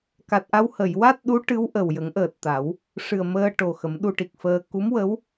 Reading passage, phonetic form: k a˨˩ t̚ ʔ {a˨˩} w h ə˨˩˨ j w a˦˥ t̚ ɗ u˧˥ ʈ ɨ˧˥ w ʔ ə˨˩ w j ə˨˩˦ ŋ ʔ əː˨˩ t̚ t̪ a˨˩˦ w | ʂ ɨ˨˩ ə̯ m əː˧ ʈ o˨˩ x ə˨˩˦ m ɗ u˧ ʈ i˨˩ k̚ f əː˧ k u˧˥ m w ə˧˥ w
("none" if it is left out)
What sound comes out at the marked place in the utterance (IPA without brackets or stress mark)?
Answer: a˧